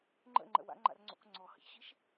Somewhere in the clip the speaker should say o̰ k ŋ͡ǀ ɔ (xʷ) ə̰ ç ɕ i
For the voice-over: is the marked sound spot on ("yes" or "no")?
no